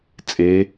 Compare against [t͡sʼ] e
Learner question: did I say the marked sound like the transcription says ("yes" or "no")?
yes